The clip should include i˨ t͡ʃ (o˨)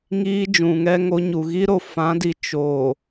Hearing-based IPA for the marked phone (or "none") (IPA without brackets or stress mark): oː˨